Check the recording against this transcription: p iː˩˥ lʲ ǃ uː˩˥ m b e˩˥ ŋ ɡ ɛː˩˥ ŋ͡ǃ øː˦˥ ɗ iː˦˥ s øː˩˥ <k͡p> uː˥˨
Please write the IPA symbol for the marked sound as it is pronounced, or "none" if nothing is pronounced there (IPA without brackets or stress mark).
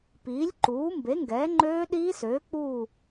k͡p